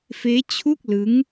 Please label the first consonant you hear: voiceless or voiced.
voiceless